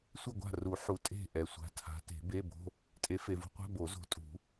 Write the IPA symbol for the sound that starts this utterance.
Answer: sʷ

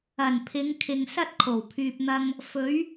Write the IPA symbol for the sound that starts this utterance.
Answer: ɐ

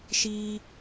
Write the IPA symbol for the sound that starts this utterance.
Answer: ʃ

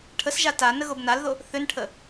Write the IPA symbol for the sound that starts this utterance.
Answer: ʈʰ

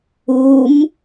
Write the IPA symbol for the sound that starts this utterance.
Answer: u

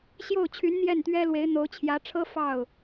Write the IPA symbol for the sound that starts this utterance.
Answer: ɕ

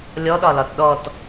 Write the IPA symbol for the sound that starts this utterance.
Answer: lʲ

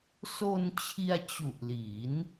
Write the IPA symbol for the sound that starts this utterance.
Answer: s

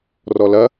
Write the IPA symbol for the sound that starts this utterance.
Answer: r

